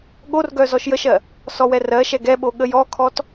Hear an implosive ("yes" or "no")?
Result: yes